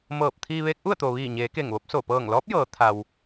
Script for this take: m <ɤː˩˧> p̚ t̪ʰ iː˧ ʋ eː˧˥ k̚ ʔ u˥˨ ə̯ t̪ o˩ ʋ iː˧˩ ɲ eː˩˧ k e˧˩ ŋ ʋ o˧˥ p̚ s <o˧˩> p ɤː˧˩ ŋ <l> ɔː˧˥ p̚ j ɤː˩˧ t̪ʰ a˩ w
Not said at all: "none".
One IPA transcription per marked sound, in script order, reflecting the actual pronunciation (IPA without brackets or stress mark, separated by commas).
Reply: ɤː˧˩, o˧˩, l